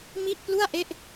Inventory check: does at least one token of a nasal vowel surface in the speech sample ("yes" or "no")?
no